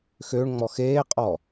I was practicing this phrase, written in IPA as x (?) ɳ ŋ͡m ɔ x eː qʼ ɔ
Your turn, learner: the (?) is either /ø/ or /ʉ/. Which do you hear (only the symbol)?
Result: ø